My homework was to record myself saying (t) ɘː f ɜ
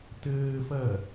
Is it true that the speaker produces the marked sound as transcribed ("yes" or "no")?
yes